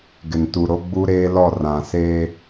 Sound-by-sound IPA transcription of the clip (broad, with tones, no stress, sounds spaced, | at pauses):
ɡ ɪ˨ n t u˨ ɾ o˦ ɡ͡b u˦ ɾ eː˦ l ɔ˦˨ r ã˨ s eː˦